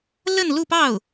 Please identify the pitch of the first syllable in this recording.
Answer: falling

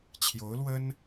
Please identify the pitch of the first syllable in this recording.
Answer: rising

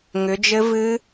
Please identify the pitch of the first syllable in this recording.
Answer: rising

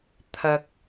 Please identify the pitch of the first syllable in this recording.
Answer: low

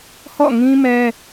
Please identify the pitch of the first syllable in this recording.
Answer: falling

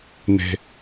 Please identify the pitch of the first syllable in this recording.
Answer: low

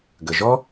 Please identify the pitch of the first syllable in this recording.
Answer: low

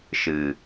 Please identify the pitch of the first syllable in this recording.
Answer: low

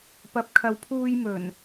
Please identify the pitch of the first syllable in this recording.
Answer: rising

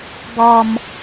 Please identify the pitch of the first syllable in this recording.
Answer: low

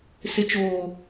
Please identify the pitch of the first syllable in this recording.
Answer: low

